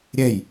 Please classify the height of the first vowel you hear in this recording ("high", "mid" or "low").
mid